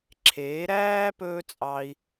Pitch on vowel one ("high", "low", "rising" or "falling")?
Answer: rising